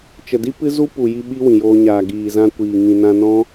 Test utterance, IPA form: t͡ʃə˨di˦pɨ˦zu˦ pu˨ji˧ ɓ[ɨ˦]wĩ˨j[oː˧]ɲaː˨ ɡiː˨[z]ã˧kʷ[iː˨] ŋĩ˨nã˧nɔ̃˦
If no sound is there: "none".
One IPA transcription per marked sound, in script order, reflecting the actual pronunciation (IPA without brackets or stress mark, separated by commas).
i˦, oː˧, z, iː˨